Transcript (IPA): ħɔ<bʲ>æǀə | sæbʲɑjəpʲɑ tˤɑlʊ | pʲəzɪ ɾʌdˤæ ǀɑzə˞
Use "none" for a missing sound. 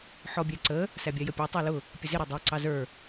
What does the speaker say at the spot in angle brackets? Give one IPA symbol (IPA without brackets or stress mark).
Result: bʲ